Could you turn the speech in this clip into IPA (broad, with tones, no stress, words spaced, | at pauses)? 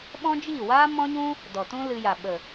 ɓɔ̃˦d͡ʒiː˦˨waː˦ mɔ̃˦ɲũ˦ | dɔ˨tũ˦ lɨ˧ja˨ ɓə˨